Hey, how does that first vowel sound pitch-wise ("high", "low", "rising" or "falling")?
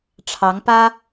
rising